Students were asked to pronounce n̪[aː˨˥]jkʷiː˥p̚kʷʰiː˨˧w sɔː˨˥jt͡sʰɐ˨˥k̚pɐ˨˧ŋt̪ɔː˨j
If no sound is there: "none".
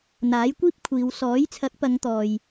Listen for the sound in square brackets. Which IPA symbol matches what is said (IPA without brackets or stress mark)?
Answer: aː˨˥